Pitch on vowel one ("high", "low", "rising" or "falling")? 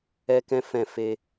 high